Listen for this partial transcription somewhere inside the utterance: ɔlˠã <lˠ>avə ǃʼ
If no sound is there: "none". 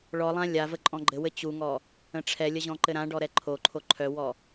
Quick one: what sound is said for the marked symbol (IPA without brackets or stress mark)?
lʲ